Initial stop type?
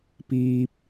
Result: plain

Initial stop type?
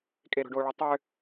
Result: ejective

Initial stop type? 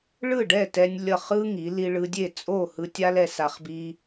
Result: plain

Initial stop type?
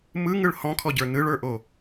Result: aspirated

